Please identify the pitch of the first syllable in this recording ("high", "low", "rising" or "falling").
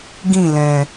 falling